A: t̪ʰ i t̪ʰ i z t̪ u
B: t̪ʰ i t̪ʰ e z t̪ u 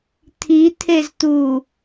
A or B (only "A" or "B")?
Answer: B